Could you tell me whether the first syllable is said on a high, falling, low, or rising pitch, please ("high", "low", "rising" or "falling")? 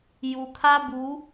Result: low